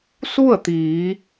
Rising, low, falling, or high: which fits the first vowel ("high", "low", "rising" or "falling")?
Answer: falling